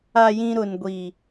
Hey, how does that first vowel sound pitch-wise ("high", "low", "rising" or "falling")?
low